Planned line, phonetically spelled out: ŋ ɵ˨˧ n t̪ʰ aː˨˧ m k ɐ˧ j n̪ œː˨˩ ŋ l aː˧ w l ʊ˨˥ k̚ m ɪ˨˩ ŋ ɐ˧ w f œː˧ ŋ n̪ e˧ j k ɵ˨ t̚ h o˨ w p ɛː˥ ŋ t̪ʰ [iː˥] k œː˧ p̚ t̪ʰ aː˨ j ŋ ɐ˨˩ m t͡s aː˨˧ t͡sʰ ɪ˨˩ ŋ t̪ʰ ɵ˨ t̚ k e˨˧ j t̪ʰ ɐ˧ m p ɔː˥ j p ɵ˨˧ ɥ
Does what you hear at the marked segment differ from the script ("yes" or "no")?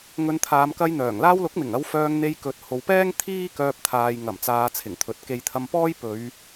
no